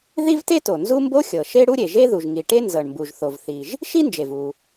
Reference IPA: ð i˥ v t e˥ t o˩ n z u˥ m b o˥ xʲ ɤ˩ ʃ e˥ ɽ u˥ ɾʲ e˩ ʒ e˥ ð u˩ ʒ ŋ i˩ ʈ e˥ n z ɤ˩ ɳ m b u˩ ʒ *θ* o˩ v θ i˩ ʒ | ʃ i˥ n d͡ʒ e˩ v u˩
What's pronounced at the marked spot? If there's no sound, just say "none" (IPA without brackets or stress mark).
θ